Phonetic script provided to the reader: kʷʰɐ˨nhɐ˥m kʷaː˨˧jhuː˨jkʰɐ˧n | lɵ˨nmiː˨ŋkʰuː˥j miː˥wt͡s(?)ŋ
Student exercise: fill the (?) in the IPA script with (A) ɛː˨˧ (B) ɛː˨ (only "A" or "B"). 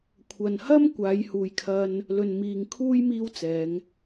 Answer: A